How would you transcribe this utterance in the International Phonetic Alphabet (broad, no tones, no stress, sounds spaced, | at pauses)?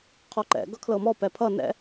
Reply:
qʰ ɔ ǃ ɛ̰ ɡ ʌ kʰ l ɤ m ɔ p ɛ pʰ ʌ n ɛ̰